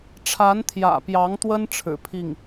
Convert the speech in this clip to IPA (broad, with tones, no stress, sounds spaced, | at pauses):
ʈ͡ʂʰ a˧˥ n t̪ʰ j ä̰˨˩ p j ɑ˧˥ ŋ t̪ w ə˥ n ʈ͡ʂʰ ɻ̩˨˩ pʰ i˥˩ ŋ